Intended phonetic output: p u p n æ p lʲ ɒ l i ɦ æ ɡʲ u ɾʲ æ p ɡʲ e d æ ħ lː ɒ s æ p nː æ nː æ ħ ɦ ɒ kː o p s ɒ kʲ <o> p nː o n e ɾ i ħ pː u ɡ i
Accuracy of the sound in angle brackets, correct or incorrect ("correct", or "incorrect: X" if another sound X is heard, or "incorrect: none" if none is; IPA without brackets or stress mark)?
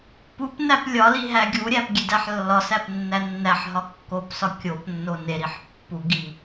correct